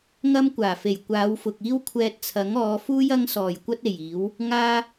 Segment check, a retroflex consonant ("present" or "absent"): absent